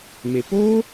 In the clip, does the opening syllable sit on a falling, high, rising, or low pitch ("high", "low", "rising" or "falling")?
low